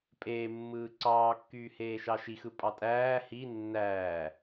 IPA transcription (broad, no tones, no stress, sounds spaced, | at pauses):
pʼ eː mː ɯː ǀ ɑː kː yː h eː ʃ ɑ ʃ i x ɯ pʼ ɑ tʼ æː h i nː æː